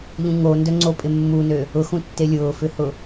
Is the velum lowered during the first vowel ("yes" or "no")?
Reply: yes